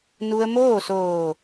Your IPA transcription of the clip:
n u˧ ə̯ m oː˥˨ s oː˧˩

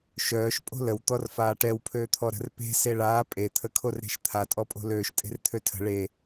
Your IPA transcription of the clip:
ʃ œː ʃ pʼ o̤ l ə w t̪ ɔ r f aː ʈ ɛ w pʰ øː t̪ʰ ɔ ɾ ə̤ r p e̤ s e ɭ aː pʼ e t̪ʰ ə kʰ o r ɾ e̤ ʃ t̪ʰ a tʼ ɔ pʼ o̤ l øː ʃ tʼ e̤ r t̪ʰ ø tʰ ə̤ ɭ e

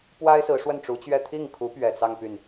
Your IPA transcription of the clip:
p w a˥ ɪ̯ s ɹ̩˧˥ ʂ w ə˥˩ n ʈ͡ʂ u˧˥ t͡ɕ ɥ ɛ˥˧ t̪ʰ i˥˩ ŋ kʰ u˧˥ p ɥ ɛ˨˩ t͡s ɑ˥˧ ŋ p y˥˩ n

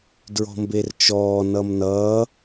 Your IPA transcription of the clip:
d ɹ ɔ̤ m b e r t͡ʃ ɔː n ʌ m n ʌː

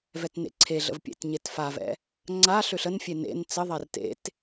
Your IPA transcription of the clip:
v ɛ t n ḛ ǀʰ e ɮ ə̰ v pʲ ḛ t ɲ e t f a v ɛ̰ | ŋ͡ǀ a ɬ ø ɬ ə n fʲ e n ḛ n t͡s ə ðˤ ɛ r t ḛ t

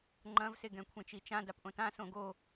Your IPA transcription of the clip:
ŋ͡ǃ ɐ̃ v s e ɡ ɛ̃ kʷʰ ẽ t͡ʃ i t͡ʃ ã d a p ʔ õ t ã s õ ɡ o

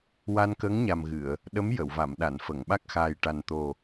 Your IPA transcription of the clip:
w a˧ n k əː˧˥ ŋ ɲ a˨˩ m ɣ ɨ˨˩˨ ə̯ | ɗ ə˧˥ m j ə˨˩˨ w v a˨˩˨ m ɗ a˨˩˨ n f ə˨˩˨ ŋ ɓ a˦˥ k̚ x aː˨˩ j ʈ a˨˩ n t̪ o˨˩

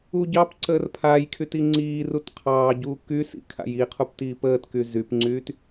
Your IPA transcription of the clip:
u ɟ ɑ p ǀ əː r pʰ a j kʰ y t i ŋ͡ǀ iː r u t qʰ ɑː ɟ uː k y s ḭ kʰ a̰ j i qʰ u p t iː p əː t k y z y p ŋ͡ǀ yː t

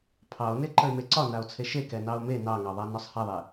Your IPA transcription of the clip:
pʰ ɑ o̯ n e ǃ ə e̯ m e ǀ ɒ n a o̯ t͡sʰ e ʃ e k ɛ n ɑ o̯ m e n ɑ ŋ ɑ ðˤ a n ɒ sˤ h ɛ ðˤ e

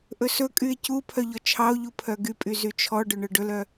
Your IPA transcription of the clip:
ʔ ɵ s ɵ kʼ y e̯ c u pʰ œ ʎ ɔ t͡ʃʰ ɑ o̯ ʎ u pʰ œ ɡ y pʼ y z y t͡ʃʰ ɔ ɖ ɵ ɳ œ ɖ ɵ l œ

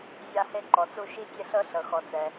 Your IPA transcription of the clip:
zʲ a˧ h e˧ ǃ ɔ˩ t͡s u˧ ʃ i˧ tʲ e˧ ɬ ɤ˧ ɬ ɤ˩ x ɔ˩ t͡s ɛ˩

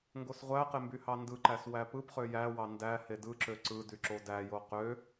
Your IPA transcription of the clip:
ŋ ɡ o s ʁʷ æ q e m b y h ɑ n d ɯ ǃ æ s w æ p ɯ p χ ø j æ w ɑ n d æ h e d ɯ ǁ ø ǀ ɯ d y ǁ o d æ j o q ø

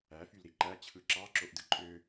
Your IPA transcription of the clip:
æ f y l ɾ i ǃ æ t͡ɕʰ ɯ ǁ ɑ ǁ o ʔ d ɯ ǃʼ ø

